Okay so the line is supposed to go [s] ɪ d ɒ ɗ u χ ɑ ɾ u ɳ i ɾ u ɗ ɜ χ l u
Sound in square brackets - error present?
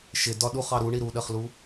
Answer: yes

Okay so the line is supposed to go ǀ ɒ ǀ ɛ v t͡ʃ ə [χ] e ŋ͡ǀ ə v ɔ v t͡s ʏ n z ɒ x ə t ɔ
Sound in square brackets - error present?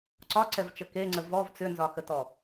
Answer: yes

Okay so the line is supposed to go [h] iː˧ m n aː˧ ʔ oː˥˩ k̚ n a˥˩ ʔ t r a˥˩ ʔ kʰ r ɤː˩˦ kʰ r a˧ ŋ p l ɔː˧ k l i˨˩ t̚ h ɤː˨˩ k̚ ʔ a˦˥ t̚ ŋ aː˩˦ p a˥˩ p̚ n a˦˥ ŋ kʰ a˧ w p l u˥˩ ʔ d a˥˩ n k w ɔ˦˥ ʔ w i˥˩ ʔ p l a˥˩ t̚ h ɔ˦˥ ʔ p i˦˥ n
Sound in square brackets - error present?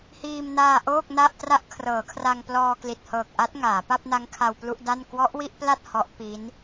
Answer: no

